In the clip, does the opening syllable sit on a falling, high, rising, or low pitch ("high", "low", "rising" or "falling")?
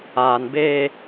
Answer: low